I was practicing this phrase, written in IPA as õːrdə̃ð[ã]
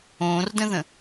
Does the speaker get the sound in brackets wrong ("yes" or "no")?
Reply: yes